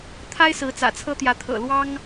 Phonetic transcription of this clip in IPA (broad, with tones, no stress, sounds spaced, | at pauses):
t̪ʰ a˦ ɪ̯ s ɹ̩˨˦ t͡s ä̰˨˩ t͡sʰ ɤ˦ t̪ j ä˨˦ t̪ʰ ɤ̰˨˩ l w ɑ˦ ŋ